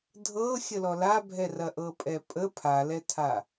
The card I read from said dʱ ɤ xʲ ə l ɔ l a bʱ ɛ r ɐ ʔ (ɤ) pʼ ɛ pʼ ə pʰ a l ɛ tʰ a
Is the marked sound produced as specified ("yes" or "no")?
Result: yes